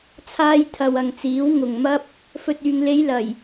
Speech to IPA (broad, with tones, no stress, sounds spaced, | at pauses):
t͡sʰ aː˧ j t̪ʰ ɐ˨ w ɐ˨ ŋ t͡s iː˨˥ w ŋ ʊ˨ ŋ m ɐ˥ p̚ | f ɵ˨ t̚ yː˨ ŋ l e˨˧ j l ɐ˨˩ j